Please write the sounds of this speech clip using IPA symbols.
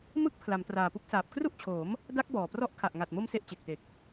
mɯ˦˥k̚ pʰla˩˦mtraː˨˩pu˦˥k̚saː˨˩p̚ kru˥˩ʔt͡ɕʰoː˩˦m | da˦˥k̚ bɔː˨˩prɔ˦˥ʔ kʰa˨˩ʔŋa˨˩t̚mo˧m se˦˥ʔt͡ɕe˨˩k̚te˨˩k̚

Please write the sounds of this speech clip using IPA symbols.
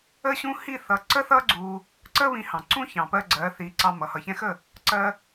ə˥ɕũ˥ hi˥˩θʌ˩˥ ǀə˥θʌ˥ɡ͡ǀu˧ | ǀə˥βĩ˧hɑ̃˩ǀũ˥ çɑ̃˩pɜ˧ ɡ͡ǀɜ˩˥θi˩˥ ǀɑ˧mʌ˩ hʌ˩çɛ̃˧xə˥˩ | ǀɜ˧

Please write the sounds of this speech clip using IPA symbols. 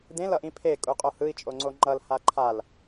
dẽl ʌʔĩpʰe kʼuqʼohɯi̯ t͡ʃʼoŋ͡ǀoŋ͡ǃʌl haǃʰal

